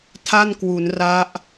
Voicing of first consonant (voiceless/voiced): voiceless